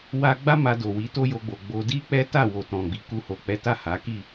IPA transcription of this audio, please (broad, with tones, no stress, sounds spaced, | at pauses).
w a˦ ɡ͡b a˦ m a˧ d o˨ w i˨˦ t o˦ j o˧ ɡ͡b o˨ ɡ͡b o˧ d i˦ k͡p ɛ˦ t a˦˨ w o˨ t ɔ̃˨ ɡ͡b i˨ k u˧ h o˨ k͡p ɛ˨˦ t a˦˨ h a˨˦ k i˦˨